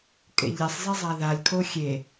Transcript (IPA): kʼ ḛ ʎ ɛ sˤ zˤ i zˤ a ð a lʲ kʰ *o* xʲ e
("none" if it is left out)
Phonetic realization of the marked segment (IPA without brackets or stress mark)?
o